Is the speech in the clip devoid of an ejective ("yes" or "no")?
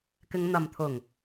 yes